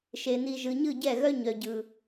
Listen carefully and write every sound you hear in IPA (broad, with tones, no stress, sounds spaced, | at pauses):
ʃ e˨ n̪ i˨ ʒ ɯ˨ ɲ ɯ˦˨ ɟ ɛ˦˨ ɣ œ˦ ɲ œ˨ ɟ ɯ˨